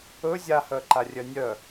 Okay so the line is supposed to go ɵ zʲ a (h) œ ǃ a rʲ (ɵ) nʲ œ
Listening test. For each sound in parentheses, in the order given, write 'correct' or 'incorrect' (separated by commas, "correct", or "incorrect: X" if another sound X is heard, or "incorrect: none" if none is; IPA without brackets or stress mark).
correct, incorrect: œ